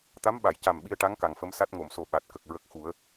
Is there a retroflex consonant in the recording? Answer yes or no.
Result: yes